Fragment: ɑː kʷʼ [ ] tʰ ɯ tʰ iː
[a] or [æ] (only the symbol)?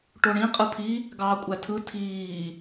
æ